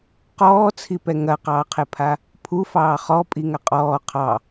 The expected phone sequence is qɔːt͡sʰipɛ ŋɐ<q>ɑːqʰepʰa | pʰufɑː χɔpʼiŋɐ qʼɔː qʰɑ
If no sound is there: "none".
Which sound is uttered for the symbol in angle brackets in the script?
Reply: q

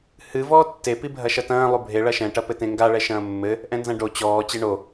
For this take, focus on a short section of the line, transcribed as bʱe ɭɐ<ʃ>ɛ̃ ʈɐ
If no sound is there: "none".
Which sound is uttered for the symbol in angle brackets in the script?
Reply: ʃ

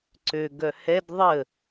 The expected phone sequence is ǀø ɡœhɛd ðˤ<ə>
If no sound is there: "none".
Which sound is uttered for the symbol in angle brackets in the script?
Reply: ə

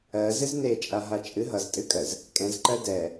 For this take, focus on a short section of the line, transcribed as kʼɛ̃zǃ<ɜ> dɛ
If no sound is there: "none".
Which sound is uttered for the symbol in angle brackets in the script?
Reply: ɜ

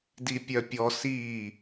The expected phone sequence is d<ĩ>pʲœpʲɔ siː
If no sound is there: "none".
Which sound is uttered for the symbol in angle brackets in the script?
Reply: i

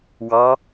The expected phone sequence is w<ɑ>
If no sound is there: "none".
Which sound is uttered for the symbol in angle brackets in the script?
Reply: ɑ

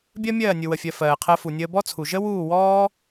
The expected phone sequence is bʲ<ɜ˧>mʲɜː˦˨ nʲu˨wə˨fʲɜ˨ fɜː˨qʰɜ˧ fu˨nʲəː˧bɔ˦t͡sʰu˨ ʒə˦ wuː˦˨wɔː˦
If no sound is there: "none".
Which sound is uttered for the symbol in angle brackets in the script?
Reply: ɜ˦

